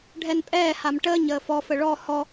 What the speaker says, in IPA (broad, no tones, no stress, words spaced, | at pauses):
ɖʱɛnpʼɛːham ʈəːɲəː fɔfə ɭɔ hɔ